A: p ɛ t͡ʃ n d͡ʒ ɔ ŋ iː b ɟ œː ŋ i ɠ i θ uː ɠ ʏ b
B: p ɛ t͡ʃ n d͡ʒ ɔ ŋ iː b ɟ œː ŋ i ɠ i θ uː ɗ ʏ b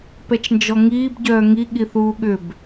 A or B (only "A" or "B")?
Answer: A